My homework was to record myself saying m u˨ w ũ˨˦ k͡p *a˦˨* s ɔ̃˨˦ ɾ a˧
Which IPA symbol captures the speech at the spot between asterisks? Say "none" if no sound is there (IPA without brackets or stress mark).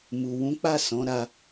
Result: a˦˨